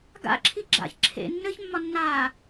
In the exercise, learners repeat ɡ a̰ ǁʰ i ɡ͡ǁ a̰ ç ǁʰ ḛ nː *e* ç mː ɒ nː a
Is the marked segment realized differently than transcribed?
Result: yes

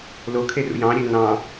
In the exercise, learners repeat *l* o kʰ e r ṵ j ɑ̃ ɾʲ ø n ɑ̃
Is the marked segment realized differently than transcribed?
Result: no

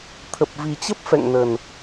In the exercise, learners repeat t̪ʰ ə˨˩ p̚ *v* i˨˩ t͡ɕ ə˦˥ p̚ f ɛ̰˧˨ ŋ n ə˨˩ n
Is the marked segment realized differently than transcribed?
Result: no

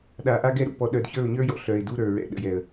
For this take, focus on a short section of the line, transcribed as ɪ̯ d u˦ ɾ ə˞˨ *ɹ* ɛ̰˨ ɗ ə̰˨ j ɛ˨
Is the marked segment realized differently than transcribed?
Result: no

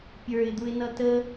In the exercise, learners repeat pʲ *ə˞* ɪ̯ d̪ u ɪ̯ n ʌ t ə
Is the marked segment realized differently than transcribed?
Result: no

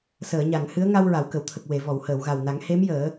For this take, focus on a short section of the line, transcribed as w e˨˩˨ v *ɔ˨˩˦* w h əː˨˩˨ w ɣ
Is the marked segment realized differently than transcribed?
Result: yes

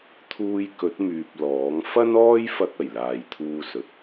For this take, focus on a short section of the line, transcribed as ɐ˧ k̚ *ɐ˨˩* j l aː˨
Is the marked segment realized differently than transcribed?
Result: no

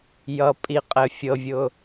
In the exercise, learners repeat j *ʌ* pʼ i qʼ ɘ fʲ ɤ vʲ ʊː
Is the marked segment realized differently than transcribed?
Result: no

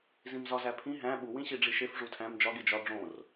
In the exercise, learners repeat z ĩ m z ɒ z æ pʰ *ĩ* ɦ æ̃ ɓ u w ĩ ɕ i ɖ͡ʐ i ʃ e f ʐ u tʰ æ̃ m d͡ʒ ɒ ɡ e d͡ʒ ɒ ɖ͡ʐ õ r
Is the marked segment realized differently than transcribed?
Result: no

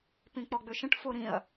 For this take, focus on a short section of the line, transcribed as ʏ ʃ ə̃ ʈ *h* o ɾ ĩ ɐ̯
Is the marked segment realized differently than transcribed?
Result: yes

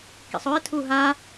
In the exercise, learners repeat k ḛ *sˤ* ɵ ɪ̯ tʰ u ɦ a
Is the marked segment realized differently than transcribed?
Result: no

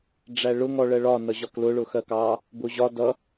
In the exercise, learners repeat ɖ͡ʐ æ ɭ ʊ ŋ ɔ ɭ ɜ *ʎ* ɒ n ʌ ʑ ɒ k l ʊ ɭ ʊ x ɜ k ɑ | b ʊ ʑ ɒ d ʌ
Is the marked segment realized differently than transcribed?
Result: yes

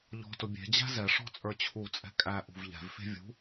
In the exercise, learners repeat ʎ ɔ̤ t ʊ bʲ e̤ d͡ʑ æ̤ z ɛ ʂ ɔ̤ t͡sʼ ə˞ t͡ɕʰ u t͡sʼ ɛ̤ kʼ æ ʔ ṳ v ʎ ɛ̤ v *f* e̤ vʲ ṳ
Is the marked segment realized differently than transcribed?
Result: no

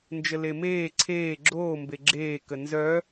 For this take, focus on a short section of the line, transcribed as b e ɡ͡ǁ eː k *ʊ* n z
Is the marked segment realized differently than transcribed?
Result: yes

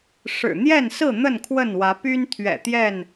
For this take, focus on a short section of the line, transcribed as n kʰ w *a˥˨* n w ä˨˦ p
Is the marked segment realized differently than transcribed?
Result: yes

